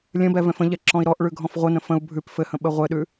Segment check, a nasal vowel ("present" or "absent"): present